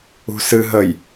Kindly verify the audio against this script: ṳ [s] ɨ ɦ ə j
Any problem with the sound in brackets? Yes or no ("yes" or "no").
no